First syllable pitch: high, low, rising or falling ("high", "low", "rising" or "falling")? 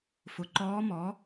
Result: rising